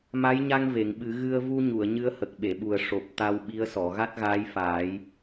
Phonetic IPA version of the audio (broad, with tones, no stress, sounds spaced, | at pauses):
m a˧˥ j ɲ a˧ ŋ v e˨˩˨ ŋ ɓ ɨ˨˩˦ ɣ ɨ˧ ə̯ v u˧ ɲ u˨˩˨ ə̯ ɲ ɨ˧˥ ə̯ h ə˨˩ k̚ ɓ e˨˩˨ ɓ u˨˩ ə̯ ʂ o˨˩ p̚ t̪ a˧ w ɓ i˧˥ ə̯ s ɔ˨˩˨ ɣ a˦˥ t̚ ɣ aː˧˥ j f aː˨˩˦ j